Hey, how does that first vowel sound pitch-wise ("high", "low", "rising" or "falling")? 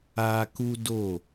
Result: high